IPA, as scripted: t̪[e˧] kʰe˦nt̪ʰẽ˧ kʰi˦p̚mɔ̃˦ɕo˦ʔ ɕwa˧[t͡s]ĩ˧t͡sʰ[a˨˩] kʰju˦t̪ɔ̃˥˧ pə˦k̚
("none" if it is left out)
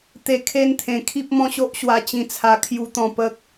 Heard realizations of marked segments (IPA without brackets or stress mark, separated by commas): e˧, t͡ɕ, a˧